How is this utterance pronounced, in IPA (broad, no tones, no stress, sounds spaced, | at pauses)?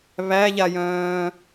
β æ ʎ a j œ̃ː